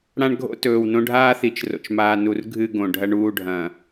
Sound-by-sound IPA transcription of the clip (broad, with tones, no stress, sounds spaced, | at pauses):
ɽ ã˦ ɳ ɡʱ o̰˦ t ɵː˨ w n õ˦ ɖʱ aː˦ θ i˨ t͡ʃ r o̰˨ t͡ʃ m aː˨ n u˨ r ɡʱ ɨ˦˨ ɡ õ˨ ɖʱ ɐ˦ ɳ uː˦˨ ɖʱ ɐ̃˨